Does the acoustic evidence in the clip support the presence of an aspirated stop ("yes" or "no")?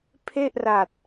yes